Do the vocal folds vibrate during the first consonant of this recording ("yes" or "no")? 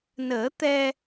yes